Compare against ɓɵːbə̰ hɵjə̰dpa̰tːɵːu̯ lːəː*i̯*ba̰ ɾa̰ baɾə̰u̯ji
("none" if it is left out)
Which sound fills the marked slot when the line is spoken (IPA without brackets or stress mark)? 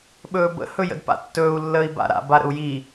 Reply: i̯